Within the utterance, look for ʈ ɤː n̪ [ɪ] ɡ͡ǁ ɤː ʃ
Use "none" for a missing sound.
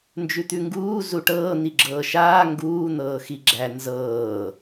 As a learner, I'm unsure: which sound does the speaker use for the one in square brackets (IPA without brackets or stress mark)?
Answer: i